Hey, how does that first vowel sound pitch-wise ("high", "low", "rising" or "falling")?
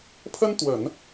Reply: high